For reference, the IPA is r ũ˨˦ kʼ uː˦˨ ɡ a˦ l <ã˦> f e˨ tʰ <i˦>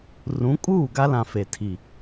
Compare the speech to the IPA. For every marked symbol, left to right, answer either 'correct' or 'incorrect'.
incorrect, incorrect

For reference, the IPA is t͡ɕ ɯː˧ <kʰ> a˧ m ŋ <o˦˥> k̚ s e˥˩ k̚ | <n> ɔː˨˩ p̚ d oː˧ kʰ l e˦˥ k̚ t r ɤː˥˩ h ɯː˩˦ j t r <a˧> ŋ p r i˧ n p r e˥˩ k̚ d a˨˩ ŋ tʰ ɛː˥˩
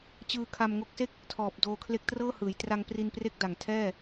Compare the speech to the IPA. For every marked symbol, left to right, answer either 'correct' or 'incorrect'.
correct, correct, incorrect, correct

